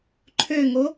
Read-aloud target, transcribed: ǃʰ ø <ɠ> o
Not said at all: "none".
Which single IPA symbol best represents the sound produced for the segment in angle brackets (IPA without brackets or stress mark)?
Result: ŋ